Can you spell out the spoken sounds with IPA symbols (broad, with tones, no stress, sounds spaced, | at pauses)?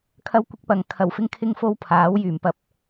kʰ ɐ˥ w kʷ ɪ˥ k̚ p ɐ˨ ŋ kʰ ɐ˨˩ w f ɪ˧ ŋ kʰ ɪ˧ ŋ f o˧ w pʰ aː˨˥ w j yː˨˩ m p ɐ˧ p̚